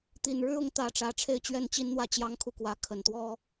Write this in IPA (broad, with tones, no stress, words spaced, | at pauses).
t̪i˨˩nɻɻ̩˥ʊ˧˥ŋt̪ä˨˩ ʈ͡ʂä˧˥ʈ͡ʂʰe˥˧ɪ̯ t͡ɕɥɛ˥˩nt͡ɕi˥nn̪wä˥˩ t͡ɕjɑ˥ŋkʰu˥˩kwä˧˥ kʰə˨˩nt̪wɔ˥